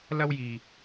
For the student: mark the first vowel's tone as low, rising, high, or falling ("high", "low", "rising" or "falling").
high